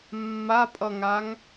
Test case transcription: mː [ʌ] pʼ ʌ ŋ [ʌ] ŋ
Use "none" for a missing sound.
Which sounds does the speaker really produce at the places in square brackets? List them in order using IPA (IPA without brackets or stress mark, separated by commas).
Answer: a, a